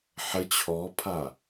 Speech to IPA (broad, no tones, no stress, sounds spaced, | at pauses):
ħ ə t͡ɕʰ ɔ pʰ a